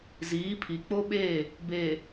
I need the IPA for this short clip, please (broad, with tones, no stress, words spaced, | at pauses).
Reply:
ziː˨˦pʰi˨ k͡po˦ɓe˦˨ | be˨